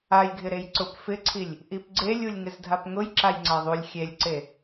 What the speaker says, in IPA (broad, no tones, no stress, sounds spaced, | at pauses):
a j ɡʱ ɪ ɾ e j ǀ ʊ p f ɪ ǀʰ i lʲ | ʔ i p ɡ͡ǀ e lʲ u lʲ ŋ ɪ z dʱ a p ŋ ʊ j ǁ a j ŋ͡ǀ a ðˤ u lʲ xʲ e lʲ ǀ e